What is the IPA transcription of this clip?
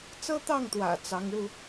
t͡sɤ˥t̪ɑ˥˩ŋt̪wä̰˨˩ t͡sɑ˧˥ŋɻu˧

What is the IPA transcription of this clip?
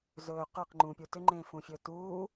zɵː qə˞q ŋ͡ǃũpʲu tʏŋ͡ǃẽːfũfʲɵː tuː

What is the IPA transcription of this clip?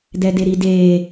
dɛdeɾideː

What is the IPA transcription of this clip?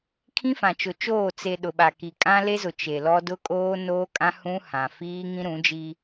kʰĩ˦fã˨t͡ʃʊ˨ t͡ʃoː˦˨ t͡se˨ ɗʊ˨ɓa˨ki˨ kʼã˦le˦zʊ˨ t͡ʃe˨lɔ˦ dʊ˦kʼoː˦noː˦kʼã˦ hũ˦hã˨ fiː˦ŋĩ˦ɾũ˨˦d͡ʒi˦

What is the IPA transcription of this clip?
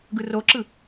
ɡɯroǁɯ

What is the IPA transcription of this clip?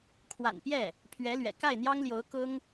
kʰwa̰˨˩npjɛ˥˩ | pʰɥɛ˧˥lɥɛ̰˨˩ ka˥˩ɪ̯ n̪jɑ˥ŋljo˧˥ʊ̯ kʊ˥ŋ

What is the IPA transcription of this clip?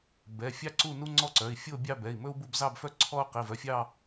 bɛ˩˧˩fʲɑ˥ǀu˥˧ nu˥ŋ͡ǀɔ˥ǀœ˩˧˩i̯ fʲo˥˧bʲɑ˥˧ bɛ˩˧˩i̯mɵ˥u̯ bu˥˧bzɑ˥˧bfœ˥ ǀʰɔ˥u̯ qi˩˧˩vœ˩˧˩fʲɑ˥˧

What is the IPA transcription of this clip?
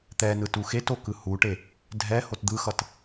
t̪ɛnɯ tuxeto kɯhuʈe | dʱɛ hotd̪ɯxʌt

